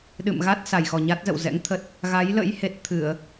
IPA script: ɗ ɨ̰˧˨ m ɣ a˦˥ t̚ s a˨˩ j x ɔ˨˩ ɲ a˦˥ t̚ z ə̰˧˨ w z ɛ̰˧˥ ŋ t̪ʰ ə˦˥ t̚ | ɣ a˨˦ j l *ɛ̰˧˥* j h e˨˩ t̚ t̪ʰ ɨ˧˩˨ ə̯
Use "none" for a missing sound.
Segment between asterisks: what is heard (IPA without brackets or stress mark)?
ə̰˧˥